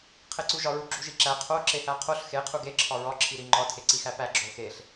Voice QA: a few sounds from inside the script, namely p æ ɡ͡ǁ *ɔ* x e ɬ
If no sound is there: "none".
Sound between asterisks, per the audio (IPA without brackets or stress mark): o